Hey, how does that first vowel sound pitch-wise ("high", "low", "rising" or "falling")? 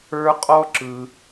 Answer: high